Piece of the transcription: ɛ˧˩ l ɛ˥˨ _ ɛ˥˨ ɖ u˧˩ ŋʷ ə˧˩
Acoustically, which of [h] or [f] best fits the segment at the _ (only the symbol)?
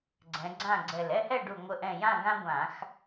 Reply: h